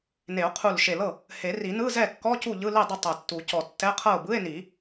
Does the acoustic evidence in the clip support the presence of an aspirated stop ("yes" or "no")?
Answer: yes